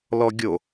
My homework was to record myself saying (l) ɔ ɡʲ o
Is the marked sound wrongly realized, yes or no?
no